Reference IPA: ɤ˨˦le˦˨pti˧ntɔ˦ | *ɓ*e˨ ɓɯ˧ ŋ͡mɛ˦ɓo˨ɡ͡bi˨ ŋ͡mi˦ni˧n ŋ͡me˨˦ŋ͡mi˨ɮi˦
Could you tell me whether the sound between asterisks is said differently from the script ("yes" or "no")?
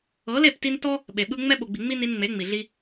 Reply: no